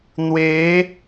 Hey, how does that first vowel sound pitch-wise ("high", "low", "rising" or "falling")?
rising